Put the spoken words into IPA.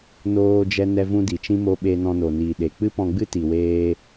n oː˧ d͡ʒ ɛ˧ n ɛ˧ v ũ˧ d i˨ t͡ʃ ĩ˧ m o˧ ɓ e˧ n ɔ̃˧ n o˨ n iː˨ ɗ e˨ k͡p ɨ˦ p ɔ̃˧ ɡ͡b ɨ˦ t i˨ w eː˧

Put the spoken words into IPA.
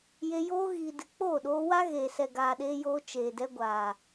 j e˧ j oː˧ ɣ iː˨ d ɨ˨ k͡p oː˦˨ ɗ oː˧ w a˦ ɣ eː˨ s ɛ˨ ɡ aː˨ ɗ eː˧ j oː˧ t͡ʃ eː˨ d ɛ˧ ɡʷ aː˨

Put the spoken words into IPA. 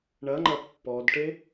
ɳ ɐ ŋ͡ǃ ɐ pː ɔ d ʈ e

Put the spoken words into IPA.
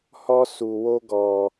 h ɔ˦ s u˧ w o˦ ɡ ɔ˧

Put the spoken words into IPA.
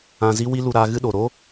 ã˧ z i˦ w i˦ l u˧ ɾ aː˧ ɣ ɨ˦ ɗ o˨ ɾ o˦

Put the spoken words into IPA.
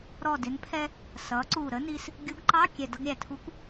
ɾ ɔ˨˩ d ɪ˩˧ n pʰ ɛ˧ | s ʌ˩˧ ǀ u˨˩ ɾ ə˦˥ n i˧ s | ɡʲ u˨˥ ɡ ǃ ɑ˧˥˧ kʲ ɛ˨˩ d ʌ˧ ɡ ɾʲ æ˨˩ tʰ u˨˥ kʷ

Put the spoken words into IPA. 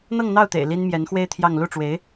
n̪ ɤ˥˧ ŋ n̪ ɑ˥˩ ʊ̯ t̪ ḛ˨˩ ɪ̯ l i˥ n m j ɛ˧˥ n x w e˥ ɪ̯ t̪ʰ j ɑ˥˧ ŋ l u˥˩ ʈ͡ʂ w e˧˥ ɪ̯

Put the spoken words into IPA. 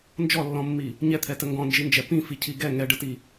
n d͡ʒ ɔ lː ɔ̃ mː i | ɲ ɛ t̪ʰ ɛ t ə ŋ ɡ ɔ̃ n d͡ʒ i n d͡ʒ ɛ p ĩ f i cʰ i ɡ ɛ ŋ ɛ ɖ ə t i

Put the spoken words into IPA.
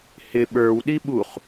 h ɪ ɓ ə˞ w ɗ i ɓ u χ

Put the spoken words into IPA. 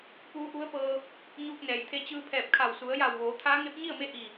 p uː˧˥ ʔ u˧˥ ə̯ p ɤː˧ | ɲ uː˧ k̚ n ɛː˩ j t̪ʰ e˧ t͡ɕ ɯː˧ pʰ ɛː˧˩ p̚ kʰ a˧˩ w s u˩˧ ə̯ j a˧˩ w ʋ oː˩˧ t̪ʰ aː˧˥ ŋ e˧˥ p̚ ɲ i˥˨ ə̯ m e˧˥ ʔ i˧˩

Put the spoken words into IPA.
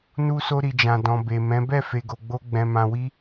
n u˧ s o˧ ɾ i˨ d͡ʒ ã˨ d ɔ̃˨ b e˨ m ɛ̃˨˦ b ɛ˦˨ f e˨ ɡ o˨ ɡ͡b o˧ ɡ͡b ɛ̃˨ m ã˧ w i˦

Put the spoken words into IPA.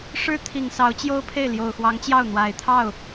ʂ ɻ̩˥ t̪ʰ i˨˩ ŋ s ɑ˧˥ ʊ̯ t͡ɕ j o˥ ʊ̯ pʰ e˥˩ ɪ̯ l j o˨˩ ʊ̯ x w ɑ˧˥ ŋ t͡ɕ j ɑ˥˩ ʊ̯ n̪ w a˨˩ ɪ̯ t̪ʰ ɑ˥˩ ʊ̯

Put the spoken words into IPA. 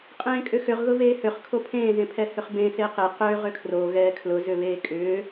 qʼ ẽː kʼ ʏ x ʏ ʁ ɣ ʊ v eː h ø χ kʰ o pʰ ẽː z ẽ pʰ ɛ h ʏ χ b ẽ s e q e q ø ʁ ʏ kʰ r o ɣ ɛː kʰ l ʊ z ʏ β eː kʼ ʏː

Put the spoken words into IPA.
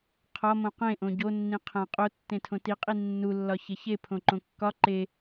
qʰ ɒ m õ q ẽ ʔ õ ɟ o nː ĩ qʰ æ̃ qʼ o tː ẽ tʰ õ t i qʼ i nː u lː ɒ ç e ç e pʰ õ ǃ õ kː ɒ ǃ e

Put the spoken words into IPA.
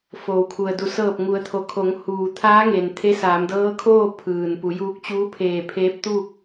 f oː˩ w kʰ u˩ ə̯ d u˧˩ s ɤː˧˩ p̚ ŋ u˩˧ ə̯ t̪ʰ o˩˧ kʰ o˩˧ ŋ h uː˩ t̪ʰ aː˧˥ ŋ e˩ n t̪ʰ e˧˥ s aː˩˧ m d ɤː˧˥ kʰ oː˥˨ pʰ ɯː˩ n p u˩˧ j uː˧ k̚ t͡ɕ uː˧˥ pʰ eː˧˩ pʰ eː˧˥ p̚ t̪ uː˥˨ k̚

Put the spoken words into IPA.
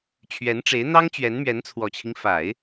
t͡ɕʰ ɥ ɛ˧˥ n ʈ͡ʂ e˧˥ ɪ̯ n̪ ɑ˥ ŋ t͡ɕ ɥ ɛ˧˥ n m ɥ ɛ˧˥ n t͡sʰ w ɔ˨˩ t͡ɕʰ i˦ ŋ f a˨˩˦ ɪ̯

